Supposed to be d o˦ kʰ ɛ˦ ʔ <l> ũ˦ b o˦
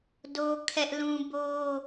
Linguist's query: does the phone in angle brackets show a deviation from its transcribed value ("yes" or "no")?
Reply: no